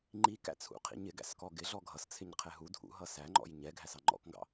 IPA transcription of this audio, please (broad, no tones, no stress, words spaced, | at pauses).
ŋ͡ǃikæ̰t͡sʰṵqʰḭ ɲɪɡæ̰s kɔɡɪ ɮɔɡʱʌst͡sʰɪɲ qʰɛɦu dʱṵɦʌ sæŋ͡ǃɔ̰j ɲɛɡʱæsɑ ŋ͡ǃɔ̰kŋɡɑ̰